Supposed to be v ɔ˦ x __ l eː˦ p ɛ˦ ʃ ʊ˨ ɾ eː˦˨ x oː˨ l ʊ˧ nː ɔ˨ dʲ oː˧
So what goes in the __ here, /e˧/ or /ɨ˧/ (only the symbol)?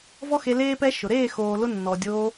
e˧